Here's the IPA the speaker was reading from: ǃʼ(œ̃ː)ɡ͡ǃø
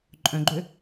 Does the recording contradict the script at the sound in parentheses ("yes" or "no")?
yes